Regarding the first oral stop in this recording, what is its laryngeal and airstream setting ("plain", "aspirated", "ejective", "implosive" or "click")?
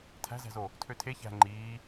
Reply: aspirated